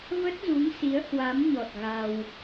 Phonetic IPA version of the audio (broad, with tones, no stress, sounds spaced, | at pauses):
v ə˦˥ t̚ z u˨˦ ŋ s i˨˦ ə̯ h w a˨˦ m ɲ ɔ˨˩ t̚ ɣ a˧ w